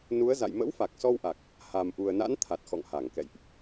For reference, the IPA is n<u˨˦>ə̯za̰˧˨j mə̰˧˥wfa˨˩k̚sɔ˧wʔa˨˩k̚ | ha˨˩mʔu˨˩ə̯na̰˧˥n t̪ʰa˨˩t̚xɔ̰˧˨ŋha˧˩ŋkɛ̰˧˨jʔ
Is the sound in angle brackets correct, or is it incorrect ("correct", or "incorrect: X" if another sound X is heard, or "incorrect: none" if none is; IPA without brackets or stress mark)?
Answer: correct